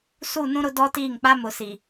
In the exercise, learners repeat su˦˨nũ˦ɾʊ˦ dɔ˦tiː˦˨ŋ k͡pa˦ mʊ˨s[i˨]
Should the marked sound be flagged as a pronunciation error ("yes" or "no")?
no